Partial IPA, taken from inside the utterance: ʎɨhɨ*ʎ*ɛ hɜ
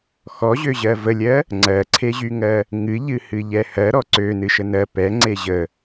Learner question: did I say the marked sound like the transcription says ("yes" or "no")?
yes